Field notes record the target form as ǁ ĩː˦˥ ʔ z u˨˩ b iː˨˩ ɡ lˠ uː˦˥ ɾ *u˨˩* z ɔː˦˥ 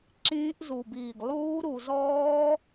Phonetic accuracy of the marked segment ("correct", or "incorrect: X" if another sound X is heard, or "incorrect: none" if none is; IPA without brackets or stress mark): correct